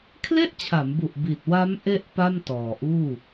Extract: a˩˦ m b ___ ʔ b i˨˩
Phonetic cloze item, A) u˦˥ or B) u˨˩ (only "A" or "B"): B